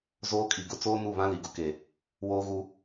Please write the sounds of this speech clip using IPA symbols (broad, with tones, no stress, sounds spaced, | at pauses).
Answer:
z oː˦ kʼ i˨ ɡ ʊ˦ t͡s oː˦ n u˦˨ β ã˦ l i˨ ɡ ʊ˨ k e˨ | w oː˦ ɣ u˦